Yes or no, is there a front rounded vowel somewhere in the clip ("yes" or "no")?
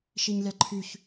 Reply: yes